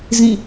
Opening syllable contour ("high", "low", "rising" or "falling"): falling